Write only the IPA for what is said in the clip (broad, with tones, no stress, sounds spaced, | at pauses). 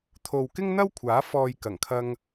t̪ʰ o˨ w k ɪ˥ ŋ n̪ ɐ˥ w kʷʰ aː˨˥ f ɔː˨ j k ɐ˨˩ ŋ kʰ ɐ˧ ŋ